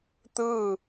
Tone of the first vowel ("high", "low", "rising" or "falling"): falling